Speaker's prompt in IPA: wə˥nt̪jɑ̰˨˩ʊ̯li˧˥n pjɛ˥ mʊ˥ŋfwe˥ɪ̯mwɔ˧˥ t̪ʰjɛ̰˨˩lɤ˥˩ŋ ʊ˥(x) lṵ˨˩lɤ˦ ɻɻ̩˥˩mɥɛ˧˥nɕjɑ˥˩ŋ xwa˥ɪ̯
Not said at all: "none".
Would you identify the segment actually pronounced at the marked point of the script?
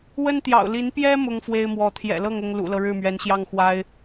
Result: ŋ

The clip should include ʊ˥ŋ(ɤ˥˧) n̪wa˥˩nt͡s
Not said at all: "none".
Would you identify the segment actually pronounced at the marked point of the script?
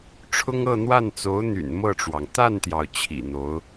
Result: ɤ˥˧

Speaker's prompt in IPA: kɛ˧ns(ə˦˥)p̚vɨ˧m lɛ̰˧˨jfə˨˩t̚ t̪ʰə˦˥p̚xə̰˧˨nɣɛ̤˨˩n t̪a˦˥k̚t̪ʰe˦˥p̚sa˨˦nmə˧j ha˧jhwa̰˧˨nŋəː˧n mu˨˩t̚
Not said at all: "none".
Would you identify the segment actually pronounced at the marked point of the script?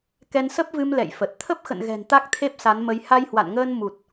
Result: ə˦˥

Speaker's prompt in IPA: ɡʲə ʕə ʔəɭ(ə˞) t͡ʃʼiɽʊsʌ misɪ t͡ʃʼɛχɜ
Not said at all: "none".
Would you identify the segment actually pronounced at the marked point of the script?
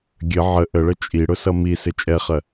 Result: ə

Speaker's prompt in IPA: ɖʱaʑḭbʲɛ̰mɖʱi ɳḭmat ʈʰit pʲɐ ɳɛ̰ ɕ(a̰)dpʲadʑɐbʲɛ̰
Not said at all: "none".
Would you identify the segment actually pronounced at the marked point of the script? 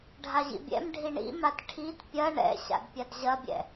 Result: a̰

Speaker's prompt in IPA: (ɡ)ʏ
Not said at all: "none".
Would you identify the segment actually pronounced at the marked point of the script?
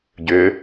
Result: ɟ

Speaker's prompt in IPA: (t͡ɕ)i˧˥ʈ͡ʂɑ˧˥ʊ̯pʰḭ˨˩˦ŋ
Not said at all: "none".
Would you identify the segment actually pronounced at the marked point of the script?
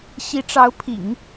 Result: ɕ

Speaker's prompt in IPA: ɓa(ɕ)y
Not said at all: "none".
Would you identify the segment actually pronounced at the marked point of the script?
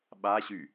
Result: ɕ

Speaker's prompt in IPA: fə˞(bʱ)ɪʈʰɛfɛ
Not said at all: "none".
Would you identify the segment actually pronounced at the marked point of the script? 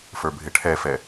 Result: bʱ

